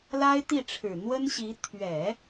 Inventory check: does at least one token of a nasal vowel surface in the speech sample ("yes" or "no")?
no